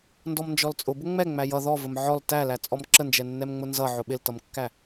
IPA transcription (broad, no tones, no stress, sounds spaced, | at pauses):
n d ɔ m n d͡ʒ ɔ l t͡sʼ ʊ b ʊ ŋ͡m ɛ ŋ͡m æ j ʌ ð ɔ v ə m ʕ ɔ l t æ l æ t͡sʼ ɔ m ǁ ə n d͡ʒ ɛ nː ɛ m ŋ͡m ʊ n z ʌ ʕ ʊ ɓ ɪ l t ʌ m kː æ